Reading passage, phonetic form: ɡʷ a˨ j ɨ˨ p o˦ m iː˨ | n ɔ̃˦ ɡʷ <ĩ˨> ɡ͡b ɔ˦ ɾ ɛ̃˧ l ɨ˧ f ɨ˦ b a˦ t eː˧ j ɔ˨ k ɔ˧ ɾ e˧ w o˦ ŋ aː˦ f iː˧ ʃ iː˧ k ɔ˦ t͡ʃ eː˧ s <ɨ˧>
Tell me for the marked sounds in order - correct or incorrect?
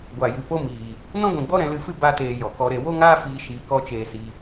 correct, incorrect: i˧

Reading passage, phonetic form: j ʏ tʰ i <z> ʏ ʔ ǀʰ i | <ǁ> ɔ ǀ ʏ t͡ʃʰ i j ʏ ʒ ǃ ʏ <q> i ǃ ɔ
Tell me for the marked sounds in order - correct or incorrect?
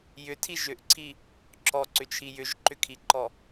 incorrect: ʒ, correct, incorrect: kʰ

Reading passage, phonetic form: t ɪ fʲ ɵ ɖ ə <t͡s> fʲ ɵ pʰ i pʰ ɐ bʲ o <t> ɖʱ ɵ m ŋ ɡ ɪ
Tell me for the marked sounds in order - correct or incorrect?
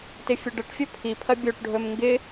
incorrect: ʈ, incorrect: ʈ

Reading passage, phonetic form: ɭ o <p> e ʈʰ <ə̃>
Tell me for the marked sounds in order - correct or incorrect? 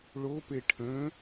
correct, correct

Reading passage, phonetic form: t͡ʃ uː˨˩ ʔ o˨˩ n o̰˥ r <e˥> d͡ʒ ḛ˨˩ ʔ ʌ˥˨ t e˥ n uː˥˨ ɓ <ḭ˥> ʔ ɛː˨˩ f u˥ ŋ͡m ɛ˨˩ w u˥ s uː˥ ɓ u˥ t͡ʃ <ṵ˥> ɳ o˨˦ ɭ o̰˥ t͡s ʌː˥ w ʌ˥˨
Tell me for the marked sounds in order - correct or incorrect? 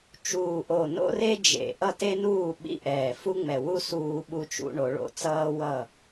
correct, correct, correct

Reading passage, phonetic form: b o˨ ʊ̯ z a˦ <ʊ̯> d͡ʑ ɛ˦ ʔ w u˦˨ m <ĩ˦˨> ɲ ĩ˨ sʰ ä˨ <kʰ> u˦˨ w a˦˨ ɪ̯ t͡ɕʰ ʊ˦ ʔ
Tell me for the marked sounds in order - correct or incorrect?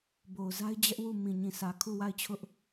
incorrect: ɪ̯, incorrect: ĩ˨, correct

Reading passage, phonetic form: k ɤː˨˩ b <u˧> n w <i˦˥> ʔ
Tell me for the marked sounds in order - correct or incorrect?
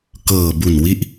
incorrect: u˨˩, correct

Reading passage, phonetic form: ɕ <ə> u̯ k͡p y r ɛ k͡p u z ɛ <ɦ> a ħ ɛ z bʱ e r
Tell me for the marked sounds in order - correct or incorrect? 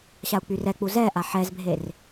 incorrect: a, incorrect: ʔ

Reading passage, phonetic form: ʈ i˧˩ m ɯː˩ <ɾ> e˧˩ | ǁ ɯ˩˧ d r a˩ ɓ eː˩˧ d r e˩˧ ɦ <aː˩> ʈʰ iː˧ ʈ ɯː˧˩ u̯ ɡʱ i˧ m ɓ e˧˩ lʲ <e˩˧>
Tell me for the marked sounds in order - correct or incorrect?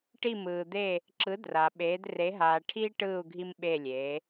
incorrect: d̪, correct, incorrect: eː˩˧

